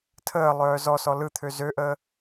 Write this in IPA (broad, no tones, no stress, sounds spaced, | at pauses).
tʰ əː lˠ œː z ɔ s ɔ l ɯ t̪ʰ ø z ø ʔ əː